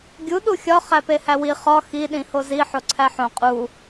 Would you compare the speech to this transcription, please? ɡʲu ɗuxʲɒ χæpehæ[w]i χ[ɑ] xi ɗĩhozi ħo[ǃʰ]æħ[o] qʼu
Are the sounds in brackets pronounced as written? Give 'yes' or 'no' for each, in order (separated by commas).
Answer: yes, no, no, no